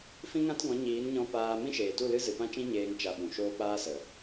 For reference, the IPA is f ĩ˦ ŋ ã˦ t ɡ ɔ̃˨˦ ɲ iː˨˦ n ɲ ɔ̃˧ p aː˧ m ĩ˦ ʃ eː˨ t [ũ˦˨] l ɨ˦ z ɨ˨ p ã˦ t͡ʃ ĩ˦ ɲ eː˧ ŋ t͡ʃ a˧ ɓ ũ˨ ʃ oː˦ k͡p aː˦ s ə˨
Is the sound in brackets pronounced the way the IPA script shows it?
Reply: no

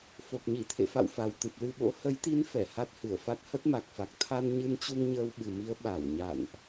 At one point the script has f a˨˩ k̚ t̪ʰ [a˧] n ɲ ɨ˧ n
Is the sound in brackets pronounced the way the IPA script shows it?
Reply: yes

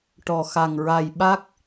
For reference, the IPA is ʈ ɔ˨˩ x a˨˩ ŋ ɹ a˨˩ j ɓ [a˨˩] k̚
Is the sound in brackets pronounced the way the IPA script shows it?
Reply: no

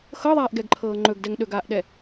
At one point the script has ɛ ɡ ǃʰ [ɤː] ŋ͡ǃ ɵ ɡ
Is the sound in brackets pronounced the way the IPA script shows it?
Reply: yes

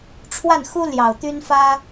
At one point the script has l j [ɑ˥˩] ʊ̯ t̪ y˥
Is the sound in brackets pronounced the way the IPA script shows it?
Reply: no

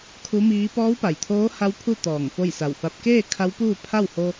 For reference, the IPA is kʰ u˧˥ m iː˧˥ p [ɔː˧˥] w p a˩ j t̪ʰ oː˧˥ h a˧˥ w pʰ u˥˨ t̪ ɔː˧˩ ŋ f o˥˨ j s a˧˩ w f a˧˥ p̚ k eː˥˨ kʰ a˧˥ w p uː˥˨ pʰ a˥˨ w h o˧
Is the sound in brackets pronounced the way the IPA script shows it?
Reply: yes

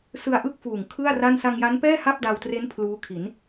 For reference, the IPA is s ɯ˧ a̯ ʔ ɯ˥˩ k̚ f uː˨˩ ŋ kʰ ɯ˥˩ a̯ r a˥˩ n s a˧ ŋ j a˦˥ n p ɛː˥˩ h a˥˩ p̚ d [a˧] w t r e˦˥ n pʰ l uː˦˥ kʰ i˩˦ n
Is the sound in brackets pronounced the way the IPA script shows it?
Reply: yes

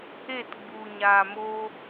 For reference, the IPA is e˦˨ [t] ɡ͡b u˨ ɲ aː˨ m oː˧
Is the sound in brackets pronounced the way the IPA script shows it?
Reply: yes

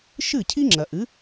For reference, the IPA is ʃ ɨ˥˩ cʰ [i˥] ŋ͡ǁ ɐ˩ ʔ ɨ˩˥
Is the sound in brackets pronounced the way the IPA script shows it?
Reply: yes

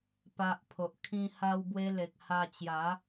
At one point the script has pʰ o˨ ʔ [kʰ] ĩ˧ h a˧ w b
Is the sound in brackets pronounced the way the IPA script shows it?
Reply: yes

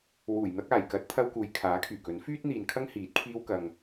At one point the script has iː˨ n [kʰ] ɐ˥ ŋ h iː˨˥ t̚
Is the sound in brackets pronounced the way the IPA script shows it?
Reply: yes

